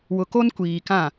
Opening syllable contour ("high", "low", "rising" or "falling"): low